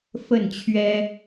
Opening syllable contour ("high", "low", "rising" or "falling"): falling